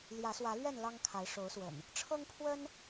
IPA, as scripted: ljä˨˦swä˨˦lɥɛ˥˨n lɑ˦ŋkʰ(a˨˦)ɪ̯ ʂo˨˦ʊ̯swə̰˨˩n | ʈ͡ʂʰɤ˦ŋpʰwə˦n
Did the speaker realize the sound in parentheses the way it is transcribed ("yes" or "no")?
yes